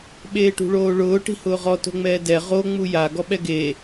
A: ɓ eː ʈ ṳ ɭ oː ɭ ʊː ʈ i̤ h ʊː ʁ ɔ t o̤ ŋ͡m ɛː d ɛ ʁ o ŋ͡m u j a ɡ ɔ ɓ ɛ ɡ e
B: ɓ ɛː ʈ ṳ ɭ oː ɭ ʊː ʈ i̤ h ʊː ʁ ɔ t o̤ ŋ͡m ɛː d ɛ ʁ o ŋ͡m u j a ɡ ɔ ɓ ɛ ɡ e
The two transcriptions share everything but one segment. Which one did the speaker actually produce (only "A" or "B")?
A